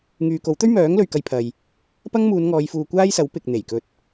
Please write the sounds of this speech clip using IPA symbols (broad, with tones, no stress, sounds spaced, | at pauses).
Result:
ŋ yː˨ k o˨˥ w t̪ ɵ˥ ɥ m œː˨˥ ŋ l ɵ˨ ɥ k ɐ˧ j pʰ ɐ˨ j | p ɐ˥ ŋ m uː˨˧ n ŋ ɔː˨˧ j f uː˨ kʷ aː˥ j s ɐ˨˥ w p ɪ˨ k̚ n̪ e˨˩ j k ɵ˧ t̚